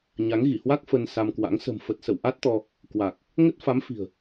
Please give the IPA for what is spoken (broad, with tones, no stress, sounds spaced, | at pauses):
ɲ a˨˦ ŋ ɣ i˧˩ h w a˦˥ k̚ f ə˧ n s a˧ m k w a̰˧˥ ŋ s ə̤˨˩ m f ə˨˩ t̚ s ə̰˧˨ w ʔ a˦˥ t̚ t̪ ɔ˧ | k w a˨˩ k̚ | ŋ ə˦˥ t̚ f a˨˦ m f i̤˨˩ ə̯